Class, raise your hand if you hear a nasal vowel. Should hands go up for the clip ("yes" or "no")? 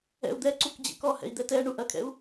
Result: no